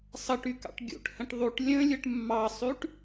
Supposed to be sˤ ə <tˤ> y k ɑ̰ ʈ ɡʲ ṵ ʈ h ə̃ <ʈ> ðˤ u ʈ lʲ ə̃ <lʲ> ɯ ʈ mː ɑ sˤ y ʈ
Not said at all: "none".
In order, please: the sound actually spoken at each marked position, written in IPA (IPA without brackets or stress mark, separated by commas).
ʈ, ʈ, lʲ